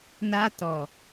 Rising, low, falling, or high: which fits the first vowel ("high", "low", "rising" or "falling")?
high